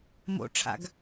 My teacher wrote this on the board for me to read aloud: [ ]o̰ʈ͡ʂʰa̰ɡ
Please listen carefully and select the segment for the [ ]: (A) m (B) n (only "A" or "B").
A